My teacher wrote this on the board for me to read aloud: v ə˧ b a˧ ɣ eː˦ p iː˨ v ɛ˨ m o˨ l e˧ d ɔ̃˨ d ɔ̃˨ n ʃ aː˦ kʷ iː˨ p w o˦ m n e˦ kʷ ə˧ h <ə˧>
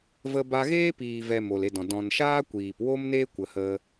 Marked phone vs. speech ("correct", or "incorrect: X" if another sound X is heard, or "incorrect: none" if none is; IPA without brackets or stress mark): incorrect: ə˦